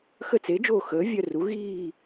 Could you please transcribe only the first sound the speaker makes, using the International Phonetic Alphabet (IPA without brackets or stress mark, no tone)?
x